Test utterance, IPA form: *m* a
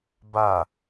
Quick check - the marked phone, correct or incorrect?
incorrect